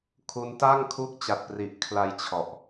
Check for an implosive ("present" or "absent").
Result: absent